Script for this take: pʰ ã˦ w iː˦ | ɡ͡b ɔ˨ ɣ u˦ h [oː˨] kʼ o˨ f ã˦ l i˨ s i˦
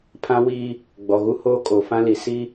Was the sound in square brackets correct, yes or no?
no